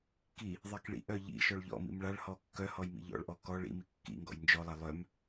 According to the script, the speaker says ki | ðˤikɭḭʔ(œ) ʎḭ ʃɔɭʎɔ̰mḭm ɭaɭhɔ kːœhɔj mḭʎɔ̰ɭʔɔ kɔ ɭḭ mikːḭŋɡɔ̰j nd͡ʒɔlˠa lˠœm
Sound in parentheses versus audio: correct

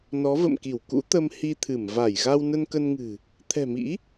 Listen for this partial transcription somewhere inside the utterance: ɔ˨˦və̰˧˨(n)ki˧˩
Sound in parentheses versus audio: incorrect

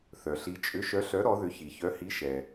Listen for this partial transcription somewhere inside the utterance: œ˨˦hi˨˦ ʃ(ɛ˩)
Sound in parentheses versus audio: correct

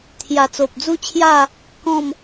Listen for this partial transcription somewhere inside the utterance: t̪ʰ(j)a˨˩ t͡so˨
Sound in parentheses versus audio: correct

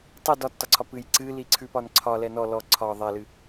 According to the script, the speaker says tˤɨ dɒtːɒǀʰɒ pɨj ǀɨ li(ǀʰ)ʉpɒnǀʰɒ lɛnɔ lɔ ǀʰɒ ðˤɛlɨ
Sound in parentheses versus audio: correct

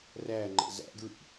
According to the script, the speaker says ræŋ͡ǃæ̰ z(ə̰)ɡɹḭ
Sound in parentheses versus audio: incorrect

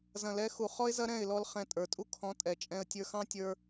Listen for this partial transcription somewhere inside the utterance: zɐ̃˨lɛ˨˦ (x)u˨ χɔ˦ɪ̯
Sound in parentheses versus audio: correct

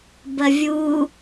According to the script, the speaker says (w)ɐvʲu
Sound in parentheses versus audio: incorrect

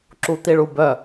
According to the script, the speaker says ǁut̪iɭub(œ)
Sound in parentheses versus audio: correct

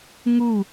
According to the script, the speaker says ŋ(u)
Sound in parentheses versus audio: correct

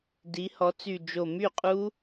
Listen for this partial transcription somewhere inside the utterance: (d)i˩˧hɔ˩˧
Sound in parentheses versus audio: correct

